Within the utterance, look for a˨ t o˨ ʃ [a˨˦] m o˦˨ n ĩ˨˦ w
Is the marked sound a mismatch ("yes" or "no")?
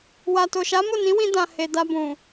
no